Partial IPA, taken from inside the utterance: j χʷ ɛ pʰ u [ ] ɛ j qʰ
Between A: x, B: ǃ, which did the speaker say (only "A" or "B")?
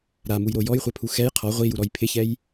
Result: A